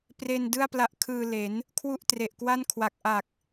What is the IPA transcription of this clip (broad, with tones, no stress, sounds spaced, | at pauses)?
p r e˧ n d ɯ˥˩ a̯ p l a˦˥ ʔ kʰ ɯː˧ l e˩˦ n | kʰ w u˥˩ ʔ t r e˨˩ ʔ k w a˥˩ n kʰ w a˨˩ k̚ ʔ a˨˩ k̚